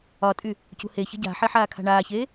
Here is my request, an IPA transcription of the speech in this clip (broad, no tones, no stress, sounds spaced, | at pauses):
ɒ tʼ y | c ṳ h e ç ə̤ ɟ a̤ ħ e ħ aː kʰ a̤ ɳ aː ç eː